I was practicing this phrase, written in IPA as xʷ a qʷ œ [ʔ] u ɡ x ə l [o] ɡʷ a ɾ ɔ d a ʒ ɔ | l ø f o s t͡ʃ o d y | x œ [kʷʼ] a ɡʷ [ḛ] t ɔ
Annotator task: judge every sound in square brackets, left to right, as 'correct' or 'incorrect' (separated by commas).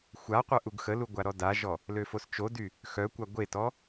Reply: correct, incorrect, incorrect, incorrect